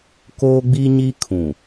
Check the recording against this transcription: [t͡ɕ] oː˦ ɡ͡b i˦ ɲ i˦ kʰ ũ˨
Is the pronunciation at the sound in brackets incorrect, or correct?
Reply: incorrect: k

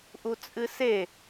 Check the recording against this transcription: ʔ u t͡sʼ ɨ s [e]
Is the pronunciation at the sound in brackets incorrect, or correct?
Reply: correct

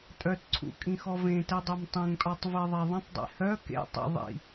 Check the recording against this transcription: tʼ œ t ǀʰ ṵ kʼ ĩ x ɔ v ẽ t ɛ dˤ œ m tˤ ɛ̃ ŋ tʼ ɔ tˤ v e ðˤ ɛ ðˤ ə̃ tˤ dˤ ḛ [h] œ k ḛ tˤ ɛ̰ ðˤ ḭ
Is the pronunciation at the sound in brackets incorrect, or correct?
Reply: correct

